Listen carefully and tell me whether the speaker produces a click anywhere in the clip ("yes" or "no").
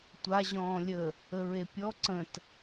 yes